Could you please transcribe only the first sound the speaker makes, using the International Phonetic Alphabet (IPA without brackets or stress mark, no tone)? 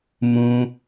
m